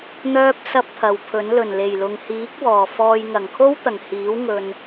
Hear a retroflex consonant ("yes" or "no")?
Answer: no